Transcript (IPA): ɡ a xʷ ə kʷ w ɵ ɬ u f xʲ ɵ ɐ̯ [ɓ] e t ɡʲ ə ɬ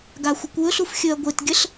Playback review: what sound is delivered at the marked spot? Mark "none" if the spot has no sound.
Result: ɡʷ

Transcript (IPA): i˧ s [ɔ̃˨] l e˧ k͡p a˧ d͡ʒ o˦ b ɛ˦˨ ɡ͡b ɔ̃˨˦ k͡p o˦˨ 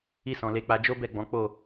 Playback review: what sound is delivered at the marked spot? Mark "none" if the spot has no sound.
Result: ɔ̃˨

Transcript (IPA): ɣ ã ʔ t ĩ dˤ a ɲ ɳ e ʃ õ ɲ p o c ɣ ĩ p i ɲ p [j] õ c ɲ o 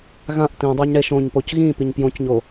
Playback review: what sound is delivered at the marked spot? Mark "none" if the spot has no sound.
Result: j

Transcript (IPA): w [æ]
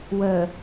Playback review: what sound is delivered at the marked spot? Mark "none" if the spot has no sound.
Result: ə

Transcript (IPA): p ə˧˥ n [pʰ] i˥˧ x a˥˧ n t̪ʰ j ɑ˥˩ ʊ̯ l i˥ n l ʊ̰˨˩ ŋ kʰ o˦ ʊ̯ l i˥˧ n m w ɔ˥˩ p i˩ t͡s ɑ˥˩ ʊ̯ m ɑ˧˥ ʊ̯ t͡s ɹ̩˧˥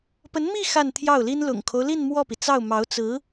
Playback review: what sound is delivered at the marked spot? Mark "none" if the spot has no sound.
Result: m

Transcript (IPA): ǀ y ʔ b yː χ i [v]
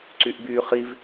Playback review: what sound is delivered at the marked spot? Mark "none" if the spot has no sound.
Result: v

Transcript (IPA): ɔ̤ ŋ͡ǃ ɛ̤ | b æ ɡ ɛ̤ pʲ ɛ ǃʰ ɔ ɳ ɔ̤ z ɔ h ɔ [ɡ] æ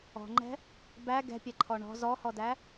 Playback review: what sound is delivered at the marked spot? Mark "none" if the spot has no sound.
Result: d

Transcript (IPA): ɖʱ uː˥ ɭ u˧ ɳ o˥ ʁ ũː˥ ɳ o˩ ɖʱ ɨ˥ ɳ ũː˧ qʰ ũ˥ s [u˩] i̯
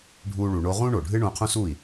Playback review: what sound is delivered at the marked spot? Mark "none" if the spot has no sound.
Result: u˥˩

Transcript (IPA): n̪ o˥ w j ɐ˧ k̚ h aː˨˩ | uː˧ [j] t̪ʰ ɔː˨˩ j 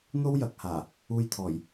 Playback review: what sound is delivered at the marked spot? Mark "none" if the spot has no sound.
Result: j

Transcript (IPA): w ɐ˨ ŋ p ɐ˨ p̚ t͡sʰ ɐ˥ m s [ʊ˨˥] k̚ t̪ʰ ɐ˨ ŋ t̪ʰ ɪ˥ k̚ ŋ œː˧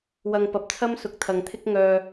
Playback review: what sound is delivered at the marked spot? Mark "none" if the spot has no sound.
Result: ʊ˨˥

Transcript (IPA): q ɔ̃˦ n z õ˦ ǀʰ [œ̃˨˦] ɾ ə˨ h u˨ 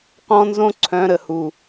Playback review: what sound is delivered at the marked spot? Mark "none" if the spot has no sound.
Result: œ̃˨˦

